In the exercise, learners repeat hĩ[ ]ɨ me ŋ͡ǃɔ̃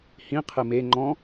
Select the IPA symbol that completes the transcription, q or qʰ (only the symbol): qʰ